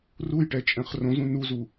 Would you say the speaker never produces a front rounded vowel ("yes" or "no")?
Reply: yes